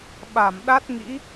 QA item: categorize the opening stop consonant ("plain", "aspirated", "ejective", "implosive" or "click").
implosive